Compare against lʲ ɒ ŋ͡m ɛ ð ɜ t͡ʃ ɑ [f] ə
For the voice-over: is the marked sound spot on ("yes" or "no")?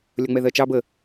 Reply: no